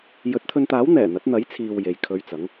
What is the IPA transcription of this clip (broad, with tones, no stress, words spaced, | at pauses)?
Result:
jɵ˨˥t̚t̪ʰɵ˧nt̪aː˨˥w n̪ɛː˨˩n̪ɐ˨˥t̚n̪ɐ˨˥jt͡sʰiː˨w je˨jkʰɵ˧ɥt͡sɐ˨˥ŋ